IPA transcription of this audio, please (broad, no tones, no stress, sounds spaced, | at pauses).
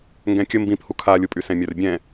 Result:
ŋ ɡ ɛ̃ kʲ ə m b ĩ p h u kʰ a lʲ u pʼ y s ɛ̃ mʲ œ r bʲ ɛ̃